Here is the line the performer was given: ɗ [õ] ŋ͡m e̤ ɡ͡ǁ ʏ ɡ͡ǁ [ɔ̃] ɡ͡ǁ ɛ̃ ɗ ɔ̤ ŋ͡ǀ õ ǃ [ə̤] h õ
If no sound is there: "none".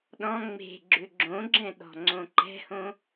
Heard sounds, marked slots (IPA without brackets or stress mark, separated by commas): ɔ̃, õ, ɛ̤